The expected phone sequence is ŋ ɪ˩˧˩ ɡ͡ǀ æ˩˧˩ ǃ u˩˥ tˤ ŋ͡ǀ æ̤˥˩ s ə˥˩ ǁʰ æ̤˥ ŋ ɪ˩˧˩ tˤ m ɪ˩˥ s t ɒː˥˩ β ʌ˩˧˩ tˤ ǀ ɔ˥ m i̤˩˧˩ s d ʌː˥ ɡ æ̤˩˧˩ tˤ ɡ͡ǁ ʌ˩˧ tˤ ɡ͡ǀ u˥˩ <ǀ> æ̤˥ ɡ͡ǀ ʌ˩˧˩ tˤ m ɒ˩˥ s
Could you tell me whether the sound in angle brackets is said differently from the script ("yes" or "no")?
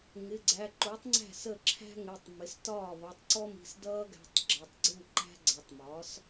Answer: yes